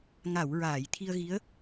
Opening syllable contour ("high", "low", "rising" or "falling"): low